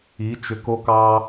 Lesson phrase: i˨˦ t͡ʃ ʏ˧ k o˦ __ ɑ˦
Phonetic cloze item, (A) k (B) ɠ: A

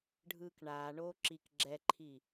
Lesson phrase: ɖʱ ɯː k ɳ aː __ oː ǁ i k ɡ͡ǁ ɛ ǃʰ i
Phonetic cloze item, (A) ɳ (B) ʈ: A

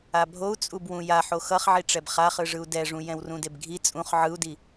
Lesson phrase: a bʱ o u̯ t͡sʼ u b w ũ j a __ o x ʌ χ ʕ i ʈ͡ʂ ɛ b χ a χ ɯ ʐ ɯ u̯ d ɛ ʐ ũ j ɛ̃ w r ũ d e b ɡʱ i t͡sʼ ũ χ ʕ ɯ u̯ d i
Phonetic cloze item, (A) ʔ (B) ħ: B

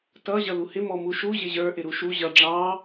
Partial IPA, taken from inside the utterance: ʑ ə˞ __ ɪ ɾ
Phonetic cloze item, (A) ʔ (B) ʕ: A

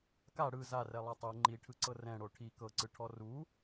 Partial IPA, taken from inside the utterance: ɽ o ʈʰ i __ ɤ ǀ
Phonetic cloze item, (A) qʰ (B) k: B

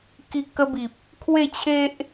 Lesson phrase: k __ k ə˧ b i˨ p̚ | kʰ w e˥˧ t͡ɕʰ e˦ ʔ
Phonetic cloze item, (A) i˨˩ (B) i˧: B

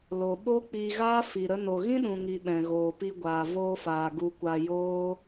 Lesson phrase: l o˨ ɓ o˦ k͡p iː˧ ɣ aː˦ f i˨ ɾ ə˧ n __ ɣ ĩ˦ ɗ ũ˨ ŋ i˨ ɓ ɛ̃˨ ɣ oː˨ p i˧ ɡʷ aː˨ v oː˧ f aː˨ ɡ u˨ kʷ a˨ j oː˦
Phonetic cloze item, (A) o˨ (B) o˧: A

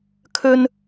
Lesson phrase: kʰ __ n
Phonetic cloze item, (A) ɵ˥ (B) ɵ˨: A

